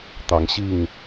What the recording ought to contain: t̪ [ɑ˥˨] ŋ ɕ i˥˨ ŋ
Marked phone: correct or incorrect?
incorrect